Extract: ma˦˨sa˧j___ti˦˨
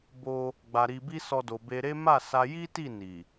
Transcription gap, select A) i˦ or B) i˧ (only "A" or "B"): A